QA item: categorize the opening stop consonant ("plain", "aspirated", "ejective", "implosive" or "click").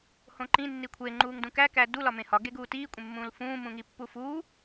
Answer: click